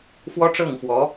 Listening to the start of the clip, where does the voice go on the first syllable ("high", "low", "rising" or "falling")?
high